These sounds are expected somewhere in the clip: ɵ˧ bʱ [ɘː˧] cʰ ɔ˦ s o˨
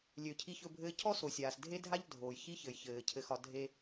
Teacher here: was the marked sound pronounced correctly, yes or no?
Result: yes